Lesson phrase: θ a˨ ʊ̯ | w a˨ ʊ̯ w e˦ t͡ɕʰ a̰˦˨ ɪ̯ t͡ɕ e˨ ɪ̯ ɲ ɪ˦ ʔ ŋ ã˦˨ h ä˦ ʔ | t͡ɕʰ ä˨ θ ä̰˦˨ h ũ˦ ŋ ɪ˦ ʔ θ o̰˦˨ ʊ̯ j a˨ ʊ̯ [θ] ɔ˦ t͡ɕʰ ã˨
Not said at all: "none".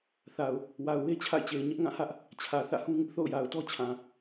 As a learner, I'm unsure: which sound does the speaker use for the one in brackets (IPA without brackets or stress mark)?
t